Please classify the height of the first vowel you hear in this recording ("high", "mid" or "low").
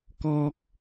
mid